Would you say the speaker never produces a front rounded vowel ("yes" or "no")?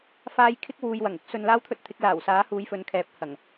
yes